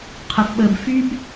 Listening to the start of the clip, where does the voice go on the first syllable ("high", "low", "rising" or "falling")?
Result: low